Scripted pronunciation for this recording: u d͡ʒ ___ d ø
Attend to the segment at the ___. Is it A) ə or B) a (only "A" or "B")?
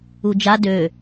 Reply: B